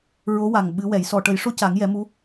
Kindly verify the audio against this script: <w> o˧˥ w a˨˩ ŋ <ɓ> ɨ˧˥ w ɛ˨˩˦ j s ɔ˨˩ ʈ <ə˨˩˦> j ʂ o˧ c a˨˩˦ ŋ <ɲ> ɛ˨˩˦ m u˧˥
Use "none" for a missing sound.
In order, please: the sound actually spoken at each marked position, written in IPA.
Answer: ɹ, ɓ, ə˨˩˦, j

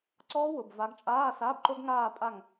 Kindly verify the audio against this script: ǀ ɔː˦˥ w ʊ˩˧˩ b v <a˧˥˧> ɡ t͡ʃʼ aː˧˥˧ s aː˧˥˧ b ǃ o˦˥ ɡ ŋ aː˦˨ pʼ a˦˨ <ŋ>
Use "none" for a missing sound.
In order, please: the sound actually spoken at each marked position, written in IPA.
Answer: a˨˦, ŋ

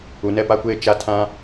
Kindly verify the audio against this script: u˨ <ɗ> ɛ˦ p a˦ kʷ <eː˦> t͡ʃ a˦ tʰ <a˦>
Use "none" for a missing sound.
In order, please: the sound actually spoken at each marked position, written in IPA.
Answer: n, eː˦, ã˦

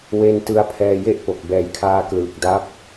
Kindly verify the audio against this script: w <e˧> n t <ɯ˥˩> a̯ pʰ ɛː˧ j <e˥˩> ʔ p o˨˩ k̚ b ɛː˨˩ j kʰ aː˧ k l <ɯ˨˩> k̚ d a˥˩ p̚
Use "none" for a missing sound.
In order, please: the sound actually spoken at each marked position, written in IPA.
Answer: e˧, ɯ˧, e˥˩, ɯː˨˩

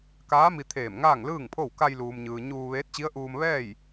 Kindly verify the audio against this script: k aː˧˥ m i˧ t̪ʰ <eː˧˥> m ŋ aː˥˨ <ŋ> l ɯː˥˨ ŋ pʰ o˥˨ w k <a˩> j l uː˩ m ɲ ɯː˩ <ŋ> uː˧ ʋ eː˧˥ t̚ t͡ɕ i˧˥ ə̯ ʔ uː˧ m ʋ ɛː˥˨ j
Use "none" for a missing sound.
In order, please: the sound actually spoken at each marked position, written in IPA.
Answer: eː˧˩, ŋ, a˧, ɲ

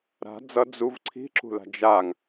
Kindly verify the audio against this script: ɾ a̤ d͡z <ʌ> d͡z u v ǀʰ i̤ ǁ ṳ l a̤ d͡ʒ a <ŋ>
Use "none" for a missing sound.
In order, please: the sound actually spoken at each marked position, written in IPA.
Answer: ʌ, ŋ

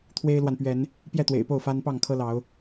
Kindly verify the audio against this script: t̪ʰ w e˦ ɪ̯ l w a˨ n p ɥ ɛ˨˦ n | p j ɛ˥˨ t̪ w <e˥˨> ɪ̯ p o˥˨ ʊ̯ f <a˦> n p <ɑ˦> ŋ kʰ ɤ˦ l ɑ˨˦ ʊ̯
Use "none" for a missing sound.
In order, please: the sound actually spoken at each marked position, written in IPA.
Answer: ḛ˨˩, a˦, ɑ˥˨

